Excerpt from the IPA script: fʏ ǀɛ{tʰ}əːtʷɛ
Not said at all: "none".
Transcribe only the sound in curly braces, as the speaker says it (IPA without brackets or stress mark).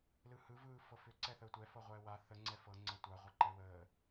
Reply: θ